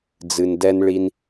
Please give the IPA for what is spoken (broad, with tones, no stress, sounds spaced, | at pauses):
d͡z ɨ˨ n d ɛ˦ n ɭ i˦ n